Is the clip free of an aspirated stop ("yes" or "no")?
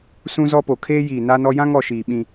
no